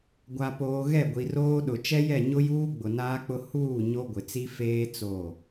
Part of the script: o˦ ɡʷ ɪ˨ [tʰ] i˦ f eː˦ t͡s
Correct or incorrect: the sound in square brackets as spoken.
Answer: incorrect: t͡s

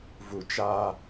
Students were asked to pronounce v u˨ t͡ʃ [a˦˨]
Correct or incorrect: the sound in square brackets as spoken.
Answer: incorrect: a˦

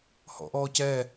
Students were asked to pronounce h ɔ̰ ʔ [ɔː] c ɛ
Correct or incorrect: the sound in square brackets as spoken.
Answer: correct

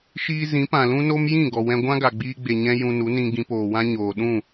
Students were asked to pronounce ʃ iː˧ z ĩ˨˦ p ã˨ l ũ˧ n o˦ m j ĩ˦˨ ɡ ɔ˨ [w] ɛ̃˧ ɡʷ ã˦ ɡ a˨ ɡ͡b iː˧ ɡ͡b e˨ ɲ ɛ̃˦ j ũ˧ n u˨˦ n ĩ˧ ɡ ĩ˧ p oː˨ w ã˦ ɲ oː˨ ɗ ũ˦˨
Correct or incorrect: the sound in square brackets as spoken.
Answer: correct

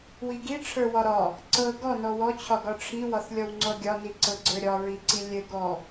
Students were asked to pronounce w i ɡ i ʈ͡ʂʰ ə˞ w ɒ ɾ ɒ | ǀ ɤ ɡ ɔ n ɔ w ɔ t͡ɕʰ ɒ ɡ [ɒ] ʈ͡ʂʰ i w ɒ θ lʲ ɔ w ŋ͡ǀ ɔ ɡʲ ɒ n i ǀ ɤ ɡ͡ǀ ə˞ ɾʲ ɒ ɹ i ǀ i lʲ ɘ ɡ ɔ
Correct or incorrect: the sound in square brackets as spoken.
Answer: correct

